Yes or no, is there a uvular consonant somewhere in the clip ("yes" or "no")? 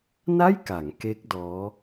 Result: no